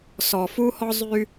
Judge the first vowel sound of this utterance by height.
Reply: mid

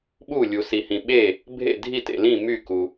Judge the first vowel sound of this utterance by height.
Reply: high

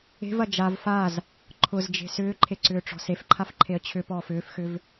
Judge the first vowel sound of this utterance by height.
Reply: mid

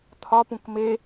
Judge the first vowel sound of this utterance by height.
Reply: low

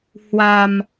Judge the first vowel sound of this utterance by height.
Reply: low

